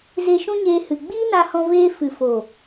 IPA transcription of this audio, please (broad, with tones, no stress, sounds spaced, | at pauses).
z e˧ ʃ ũ˦ ɲ eː˧ h ɨ˨ ɡ͡b iː˦ n a˧ h ɔ̃˧ v eː˧ f ɨ˨ f oː˨